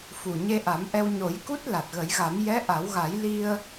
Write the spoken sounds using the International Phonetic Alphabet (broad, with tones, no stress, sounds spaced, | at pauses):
f u˨˩ ɲ e˧ ʔ a˨˩˦ m ʔ ɛ˧ w ɲ o˨˩˦ j k u˦˥ t̚ l a˨˩ t̚ ɣ ə˨˩˦ j ɣ a˨˩˦ m j ɛ˧˥ ʔ a˨˩˦ w ɣ a˨˩˦ j l i˧ ə̯